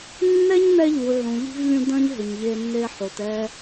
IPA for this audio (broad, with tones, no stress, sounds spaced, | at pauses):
nː ɛ˦ ɲ n̪ ɛ˧ ʎ u˨ ʕ ũ˨ ʎ i̤˧ v lʲ ũ˧ d ɐ̃˦ ɲ ɦ ʏ˨ ɲ ʎ e˧ nː e˧ ħ o˨ t ɛ˧